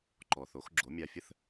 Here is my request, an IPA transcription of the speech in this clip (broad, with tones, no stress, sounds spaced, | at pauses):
ǃ ɔ˩ θ o˩˥ x ɡ͡ǁ o˩˥ mʲ a˧ fʲ ə˥ θ